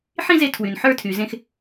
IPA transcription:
ħĩ˦ze˧ tʰwy˨nħə˞˧tʰy˨ zẽ˦x

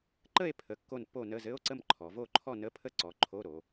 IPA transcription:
ǃə˥˨e̯pʰə˩˧ kːo˥˨npːo˥˨nə˧˥˧ zɘ˧˥˧o̯ǀə˥˨mǃʰɔ˩˧vo˥˨ ǃʰɔ˥˨nə˧˥˧pʰə˥˨ǀɔ˩˧ ǃʰo˧˥˧ɾo˩˧

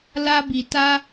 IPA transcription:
la˧bi˨ ta˧

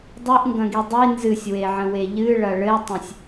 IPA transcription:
dˤɨʔŋɡɐ̃ɡi dˤi nzɨsʲweʕə̃we ʎɨɭɐ ɭɘtˤə̃sʲ

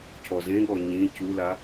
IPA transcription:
cʰɔzẽɠɔ ɲĩ cula

